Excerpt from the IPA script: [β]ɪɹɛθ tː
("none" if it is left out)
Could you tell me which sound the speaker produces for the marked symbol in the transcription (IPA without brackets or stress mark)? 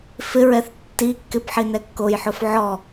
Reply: f